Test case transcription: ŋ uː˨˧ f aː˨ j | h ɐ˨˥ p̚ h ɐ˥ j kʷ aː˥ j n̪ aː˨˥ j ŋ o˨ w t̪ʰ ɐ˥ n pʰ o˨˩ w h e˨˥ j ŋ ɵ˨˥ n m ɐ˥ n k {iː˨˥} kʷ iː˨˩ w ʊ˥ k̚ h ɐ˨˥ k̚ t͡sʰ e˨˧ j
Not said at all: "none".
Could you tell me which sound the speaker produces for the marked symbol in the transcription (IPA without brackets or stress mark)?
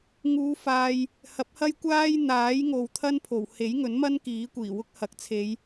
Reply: iː˨˥